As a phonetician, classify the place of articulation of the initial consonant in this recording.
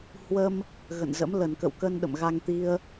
glottal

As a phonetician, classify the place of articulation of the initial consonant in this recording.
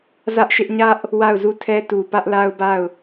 alveolar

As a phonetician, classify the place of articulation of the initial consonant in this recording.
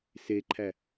alveolar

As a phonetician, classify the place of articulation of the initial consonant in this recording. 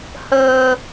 glottal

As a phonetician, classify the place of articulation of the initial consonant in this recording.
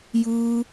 palatal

